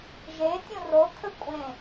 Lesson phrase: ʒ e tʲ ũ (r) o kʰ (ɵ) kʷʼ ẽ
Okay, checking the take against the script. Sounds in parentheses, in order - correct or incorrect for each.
correct, correct

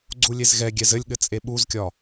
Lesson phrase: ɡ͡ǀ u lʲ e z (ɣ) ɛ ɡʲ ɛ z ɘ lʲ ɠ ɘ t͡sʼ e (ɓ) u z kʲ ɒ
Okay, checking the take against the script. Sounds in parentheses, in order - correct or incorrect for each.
correct, correct

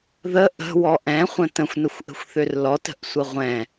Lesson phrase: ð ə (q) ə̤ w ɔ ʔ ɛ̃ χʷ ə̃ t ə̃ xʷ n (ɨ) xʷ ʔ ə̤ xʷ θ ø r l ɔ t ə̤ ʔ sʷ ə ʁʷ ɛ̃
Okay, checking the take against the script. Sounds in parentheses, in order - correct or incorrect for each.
incorrect: ʔ, incorrect: ə

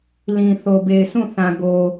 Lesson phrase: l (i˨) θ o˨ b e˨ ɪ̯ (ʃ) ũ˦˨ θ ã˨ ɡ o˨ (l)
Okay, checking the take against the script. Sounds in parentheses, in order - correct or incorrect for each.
incorrect: ĩ˨, incorrect: s, incorrect: none

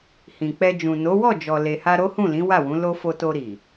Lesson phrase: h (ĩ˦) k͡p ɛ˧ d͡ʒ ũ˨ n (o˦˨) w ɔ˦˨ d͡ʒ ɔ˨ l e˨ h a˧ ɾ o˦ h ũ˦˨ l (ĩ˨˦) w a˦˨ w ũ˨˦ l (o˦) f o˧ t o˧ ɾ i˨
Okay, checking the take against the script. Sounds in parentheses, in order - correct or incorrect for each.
incorrect: ĩ˨, incorrect: o˨˦, correct, correct

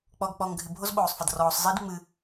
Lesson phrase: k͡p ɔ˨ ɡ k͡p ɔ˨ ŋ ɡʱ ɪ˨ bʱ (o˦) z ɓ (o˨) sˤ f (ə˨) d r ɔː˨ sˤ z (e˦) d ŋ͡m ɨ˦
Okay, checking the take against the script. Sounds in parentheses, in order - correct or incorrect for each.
correct, incorrect: oː˨, correct, incorrect: i˦

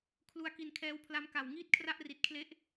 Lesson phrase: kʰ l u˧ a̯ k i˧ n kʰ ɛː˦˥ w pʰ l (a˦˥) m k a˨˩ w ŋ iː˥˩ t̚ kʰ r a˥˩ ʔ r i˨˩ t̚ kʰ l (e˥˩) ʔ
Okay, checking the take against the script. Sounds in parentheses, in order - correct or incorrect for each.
correct, incorrect: e˦˥

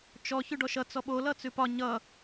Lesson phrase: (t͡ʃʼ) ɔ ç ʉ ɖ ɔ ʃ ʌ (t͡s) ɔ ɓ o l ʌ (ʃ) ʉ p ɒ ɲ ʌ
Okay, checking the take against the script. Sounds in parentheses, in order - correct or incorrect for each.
incorrect: t͡ʃ, correct, incorrect: t͡s

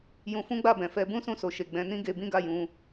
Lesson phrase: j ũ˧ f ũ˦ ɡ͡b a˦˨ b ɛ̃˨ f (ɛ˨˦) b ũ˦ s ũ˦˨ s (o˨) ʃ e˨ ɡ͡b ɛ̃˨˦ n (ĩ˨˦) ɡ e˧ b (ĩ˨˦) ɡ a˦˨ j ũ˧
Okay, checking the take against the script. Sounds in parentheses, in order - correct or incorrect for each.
correct, correct, incorrect: ĩ˦, incorrect: ĩ˦

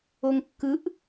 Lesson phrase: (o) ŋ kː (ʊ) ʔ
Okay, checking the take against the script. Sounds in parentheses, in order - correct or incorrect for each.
correct, incorrect: ɯ

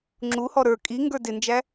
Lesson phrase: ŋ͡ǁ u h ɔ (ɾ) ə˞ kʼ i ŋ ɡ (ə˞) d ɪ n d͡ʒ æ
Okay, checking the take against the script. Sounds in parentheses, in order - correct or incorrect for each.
correct, correct

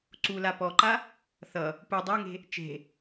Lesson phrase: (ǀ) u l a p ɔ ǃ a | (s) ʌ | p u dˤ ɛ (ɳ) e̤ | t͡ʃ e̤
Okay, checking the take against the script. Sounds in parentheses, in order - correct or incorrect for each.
correct, incorrect: θ, incorrect: ŋ

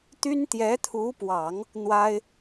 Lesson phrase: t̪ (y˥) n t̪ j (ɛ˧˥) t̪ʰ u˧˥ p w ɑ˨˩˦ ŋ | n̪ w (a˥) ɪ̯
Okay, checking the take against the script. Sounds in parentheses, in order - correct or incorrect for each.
correct, correct, correct

